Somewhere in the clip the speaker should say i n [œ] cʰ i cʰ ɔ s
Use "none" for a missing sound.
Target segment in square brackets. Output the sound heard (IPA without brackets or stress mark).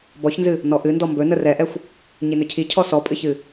ɵ